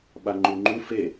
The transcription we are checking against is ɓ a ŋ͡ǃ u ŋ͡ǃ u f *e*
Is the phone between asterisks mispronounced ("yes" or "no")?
no